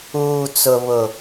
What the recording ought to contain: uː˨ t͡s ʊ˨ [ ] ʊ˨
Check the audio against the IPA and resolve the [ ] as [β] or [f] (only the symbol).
β